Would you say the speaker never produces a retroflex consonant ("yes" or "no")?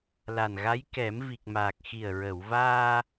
yes